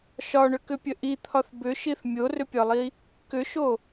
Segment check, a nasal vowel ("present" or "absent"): absent